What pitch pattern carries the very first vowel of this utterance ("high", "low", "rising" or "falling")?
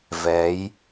rising